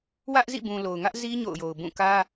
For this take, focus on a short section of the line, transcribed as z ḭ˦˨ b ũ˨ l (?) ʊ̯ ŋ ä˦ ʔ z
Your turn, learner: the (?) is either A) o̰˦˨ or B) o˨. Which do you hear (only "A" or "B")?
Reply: B